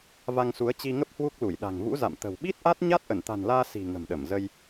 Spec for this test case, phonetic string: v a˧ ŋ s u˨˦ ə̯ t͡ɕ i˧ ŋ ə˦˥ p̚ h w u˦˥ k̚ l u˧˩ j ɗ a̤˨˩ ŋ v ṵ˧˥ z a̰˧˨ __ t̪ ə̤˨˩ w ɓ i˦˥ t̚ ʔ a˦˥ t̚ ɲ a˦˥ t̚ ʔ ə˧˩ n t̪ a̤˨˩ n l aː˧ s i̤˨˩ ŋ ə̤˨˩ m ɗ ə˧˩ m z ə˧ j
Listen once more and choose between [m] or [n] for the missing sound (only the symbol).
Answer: m